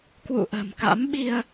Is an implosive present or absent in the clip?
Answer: present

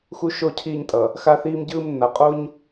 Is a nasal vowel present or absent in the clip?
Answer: absent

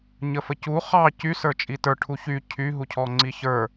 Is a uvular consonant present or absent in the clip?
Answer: present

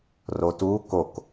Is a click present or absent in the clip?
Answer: absent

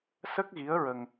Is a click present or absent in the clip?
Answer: absent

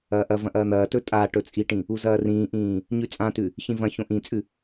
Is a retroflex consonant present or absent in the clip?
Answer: present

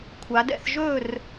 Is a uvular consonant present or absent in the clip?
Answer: absent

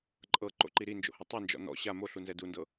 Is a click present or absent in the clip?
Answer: present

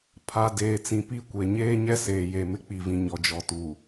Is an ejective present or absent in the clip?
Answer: absent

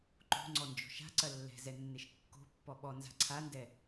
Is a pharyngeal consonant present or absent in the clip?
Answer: absent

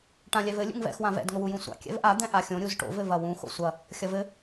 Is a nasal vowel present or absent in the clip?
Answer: present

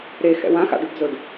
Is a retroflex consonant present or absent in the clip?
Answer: present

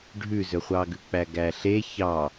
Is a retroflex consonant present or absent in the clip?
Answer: present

